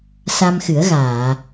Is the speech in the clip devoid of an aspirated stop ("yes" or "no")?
yes